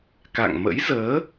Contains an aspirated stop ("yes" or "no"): no